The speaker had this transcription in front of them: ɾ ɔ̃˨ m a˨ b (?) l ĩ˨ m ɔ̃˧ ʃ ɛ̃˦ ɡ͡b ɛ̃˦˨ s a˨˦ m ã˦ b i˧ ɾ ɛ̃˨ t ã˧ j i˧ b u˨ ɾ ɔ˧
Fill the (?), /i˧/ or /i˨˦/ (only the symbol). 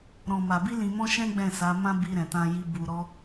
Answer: i˧